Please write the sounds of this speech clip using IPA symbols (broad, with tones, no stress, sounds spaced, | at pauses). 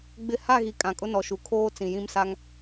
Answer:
ɡ͡b ɪ˦ h a˦˨ ɣ i˨ kʼ ã˨ kʼ ʊ˦ n ɔ˨ ʃ u˨ kʰ oː˦ t͡s ĩ˨ j ĩ˦ m s a˦ ŋ